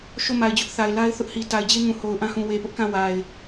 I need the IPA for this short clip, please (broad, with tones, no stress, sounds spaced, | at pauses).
ʃ o˦˨ m a˨ ɪ̯ d͡ʑ ʊ˦ ʔ θ a˨ ɪ̯ l a˦ ɪ̯ θ ʊ˦ ʔ h i˨ t a˨ ɪ̯ d͡ʑ e˦ ŋ ũ˨ h o˨ ʊ̯ ʔ ã˦ h ũ˨ w e˨ p ʊ˦ ʔ k ã˦˨ w a˨ ɪ̯